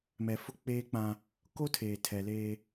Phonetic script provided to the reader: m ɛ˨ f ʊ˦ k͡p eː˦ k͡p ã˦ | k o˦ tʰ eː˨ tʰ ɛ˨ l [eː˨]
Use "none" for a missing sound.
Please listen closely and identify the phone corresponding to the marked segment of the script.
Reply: eː˦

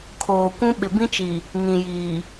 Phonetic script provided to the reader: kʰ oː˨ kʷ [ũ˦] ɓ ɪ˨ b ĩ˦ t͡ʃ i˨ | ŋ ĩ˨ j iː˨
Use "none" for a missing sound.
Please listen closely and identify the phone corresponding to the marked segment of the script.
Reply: ũ˦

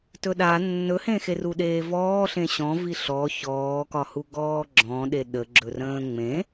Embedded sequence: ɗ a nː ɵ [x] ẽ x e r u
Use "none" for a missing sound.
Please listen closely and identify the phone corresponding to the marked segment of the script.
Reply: h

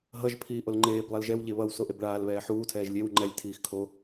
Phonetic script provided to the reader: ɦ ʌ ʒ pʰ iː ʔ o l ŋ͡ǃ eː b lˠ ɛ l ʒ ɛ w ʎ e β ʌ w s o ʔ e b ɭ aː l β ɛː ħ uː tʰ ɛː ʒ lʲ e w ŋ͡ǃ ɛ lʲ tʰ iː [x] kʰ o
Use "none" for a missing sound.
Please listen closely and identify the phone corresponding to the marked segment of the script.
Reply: x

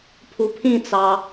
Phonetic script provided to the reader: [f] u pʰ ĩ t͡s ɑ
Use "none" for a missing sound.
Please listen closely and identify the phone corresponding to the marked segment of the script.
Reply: pʰ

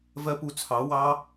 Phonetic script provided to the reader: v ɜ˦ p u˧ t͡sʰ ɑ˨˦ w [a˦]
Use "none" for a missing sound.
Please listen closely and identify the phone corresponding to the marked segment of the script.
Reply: ɑ˦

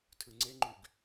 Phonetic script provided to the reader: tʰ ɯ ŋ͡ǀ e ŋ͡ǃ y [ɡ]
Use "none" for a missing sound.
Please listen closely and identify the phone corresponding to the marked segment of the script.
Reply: ɡ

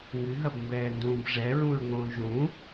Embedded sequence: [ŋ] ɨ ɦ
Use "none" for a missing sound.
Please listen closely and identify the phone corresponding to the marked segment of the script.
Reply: ŋ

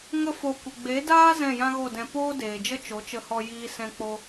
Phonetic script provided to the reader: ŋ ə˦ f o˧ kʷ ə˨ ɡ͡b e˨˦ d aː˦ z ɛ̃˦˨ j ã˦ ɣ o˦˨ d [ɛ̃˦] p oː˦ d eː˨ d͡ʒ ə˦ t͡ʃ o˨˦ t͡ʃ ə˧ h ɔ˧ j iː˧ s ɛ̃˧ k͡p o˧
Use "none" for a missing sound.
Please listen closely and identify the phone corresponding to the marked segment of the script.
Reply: ɛ̃˧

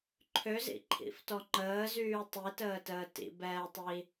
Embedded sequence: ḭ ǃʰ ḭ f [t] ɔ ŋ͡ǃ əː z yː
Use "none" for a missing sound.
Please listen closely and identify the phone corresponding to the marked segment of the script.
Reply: t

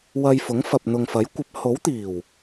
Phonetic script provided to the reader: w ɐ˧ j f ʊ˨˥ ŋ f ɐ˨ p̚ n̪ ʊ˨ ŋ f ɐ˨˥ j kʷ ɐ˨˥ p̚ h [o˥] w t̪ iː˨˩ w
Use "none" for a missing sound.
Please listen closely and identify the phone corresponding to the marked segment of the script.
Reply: o˨˥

